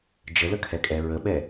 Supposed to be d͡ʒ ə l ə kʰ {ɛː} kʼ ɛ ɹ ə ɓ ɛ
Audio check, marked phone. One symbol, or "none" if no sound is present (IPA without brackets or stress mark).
ɛ